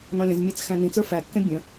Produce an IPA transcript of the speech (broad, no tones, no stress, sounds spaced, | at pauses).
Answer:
n ɔ̃ lʲ ə̃ z mʲ æ t͡s x æ̃ n ĩ t͡s ə˞ f æ kː ɛ̃ bʲ ə̃